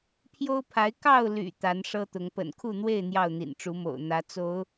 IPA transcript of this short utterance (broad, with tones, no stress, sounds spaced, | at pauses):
pʰ j o˦ ʊ̯ pʰ a˨˦ ɪ̯ k ɑ˥˨ ʊ̯ l y̰˨˩ t̪ a˨˦ n ʂ ɤ˦ t̪ ʊ˨˦ ŋ p ə̰˨˩ n kʰ u˥˨ n̪ w e˥˨ ɪ̯ n̪ j ɑ˥˨ ʊ̯ n̪ ḭ˨˩ n ʈ͡ʂ u˨˦ m o̰˨˩ ʊ̯ n̪ ä˨˦ t͡s o˨˦ ʊ̯